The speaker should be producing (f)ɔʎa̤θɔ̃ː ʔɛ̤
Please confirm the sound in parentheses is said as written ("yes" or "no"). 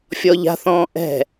no